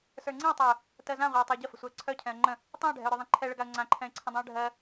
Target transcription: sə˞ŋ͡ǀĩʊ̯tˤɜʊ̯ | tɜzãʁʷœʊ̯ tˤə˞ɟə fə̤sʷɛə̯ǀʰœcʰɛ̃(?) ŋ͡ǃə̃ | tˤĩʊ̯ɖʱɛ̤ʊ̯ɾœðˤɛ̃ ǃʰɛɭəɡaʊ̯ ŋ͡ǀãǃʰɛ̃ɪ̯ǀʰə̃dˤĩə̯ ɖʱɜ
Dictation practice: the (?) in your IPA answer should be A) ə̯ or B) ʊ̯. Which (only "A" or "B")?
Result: A